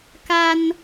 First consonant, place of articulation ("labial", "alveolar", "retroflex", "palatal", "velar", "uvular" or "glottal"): velar